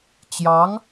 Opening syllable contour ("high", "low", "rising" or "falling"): rising